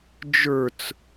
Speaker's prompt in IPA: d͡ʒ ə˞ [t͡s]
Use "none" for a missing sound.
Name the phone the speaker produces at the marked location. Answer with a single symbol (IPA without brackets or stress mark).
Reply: t͡s